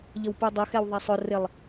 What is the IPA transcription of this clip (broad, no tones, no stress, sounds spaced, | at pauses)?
ʎ ə w p u dˤ ʊ x ɛ w ðˤ æ sˤ ʊ r ɪ lˠ